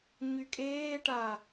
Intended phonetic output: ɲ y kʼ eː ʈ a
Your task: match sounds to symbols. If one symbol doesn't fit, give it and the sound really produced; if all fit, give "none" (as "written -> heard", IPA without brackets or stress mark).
none